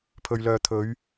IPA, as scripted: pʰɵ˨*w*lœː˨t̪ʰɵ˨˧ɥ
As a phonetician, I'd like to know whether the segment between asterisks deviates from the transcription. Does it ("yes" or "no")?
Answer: yes